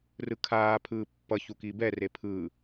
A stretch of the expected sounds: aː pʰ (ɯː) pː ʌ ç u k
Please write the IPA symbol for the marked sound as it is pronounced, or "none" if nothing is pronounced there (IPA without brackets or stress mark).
ɯː